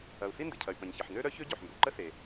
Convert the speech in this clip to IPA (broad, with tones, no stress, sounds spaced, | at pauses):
ɐ˩ u̯ s i˥ n d ɪ˩ cʰ ɐ˩ y̯ p ɐ̃˩ ɲ ç ə˩ ħ n ø˥ ɾ œ˥ ç ø˥ ɟ o˩ ħ m b ø˩ ǃ ə˥ s e˩